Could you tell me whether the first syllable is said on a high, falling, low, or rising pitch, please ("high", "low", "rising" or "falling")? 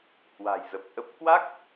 low